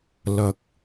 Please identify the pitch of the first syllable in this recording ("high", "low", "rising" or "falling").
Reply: low